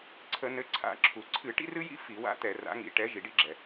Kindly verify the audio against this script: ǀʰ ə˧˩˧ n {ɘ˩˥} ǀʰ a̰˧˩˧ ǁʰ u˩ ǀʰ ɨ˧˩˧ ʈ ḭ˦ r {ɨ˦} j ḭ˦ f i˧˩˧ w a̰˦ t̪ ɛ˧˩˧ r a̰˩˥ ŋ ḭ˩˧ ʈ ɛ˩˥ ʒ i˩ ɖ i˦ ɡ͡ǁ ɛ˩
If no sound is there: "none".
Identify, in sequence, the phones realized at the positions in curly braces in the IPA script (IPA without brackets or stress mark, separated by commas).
ɘ˩˥, ɨ˦